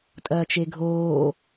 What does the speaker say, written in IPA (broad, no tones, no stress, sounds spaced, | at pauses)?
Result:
tʼ ɐː t͡ʃ e ɡʱ oː